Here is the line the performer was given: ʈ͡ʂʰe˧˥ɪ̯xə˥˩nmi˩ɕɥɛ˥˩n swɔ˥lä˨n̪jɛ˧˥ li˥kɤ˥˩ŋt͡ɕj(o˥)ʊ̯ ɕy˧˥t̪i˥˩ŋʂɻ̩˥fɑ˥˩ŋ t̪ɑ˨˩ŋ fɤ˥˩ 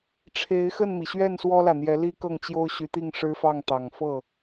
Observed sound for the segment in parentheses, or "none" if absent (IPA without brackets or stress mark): o˥